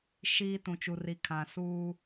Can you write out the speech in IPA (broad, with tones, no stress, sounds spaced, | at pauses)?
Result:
ʃ iː˦ t ũ˨ t͡ʃ u˨ r i˨ kʰ ã˨ s uː˦